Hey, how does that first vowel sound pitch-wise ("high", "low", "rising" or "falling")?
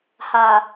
low